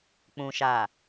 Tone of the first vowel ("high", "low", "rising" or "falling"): low